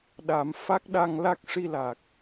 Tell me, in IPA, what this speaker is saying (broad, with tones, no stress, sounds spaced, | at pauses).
ɗ a˨˩˦ m f a˦˥ k̚ ɗ a˧ ŋ l a˦˥ k̚ ʂ i˧ l a˨˩ k̚